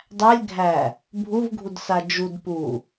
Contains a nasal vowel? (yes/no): no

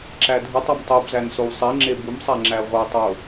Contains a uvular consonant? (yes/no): yes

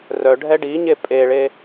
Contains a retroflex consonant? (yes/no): yes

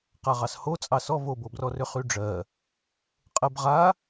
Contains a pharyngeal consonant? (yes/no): no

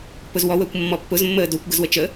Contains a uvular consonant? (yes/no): no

